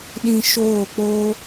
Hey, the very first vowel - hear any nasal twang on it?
yes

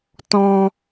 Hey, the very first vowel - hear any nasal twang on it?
yes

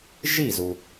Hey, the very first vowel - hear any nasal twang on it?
no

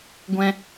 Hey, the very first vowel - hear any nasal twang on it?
yes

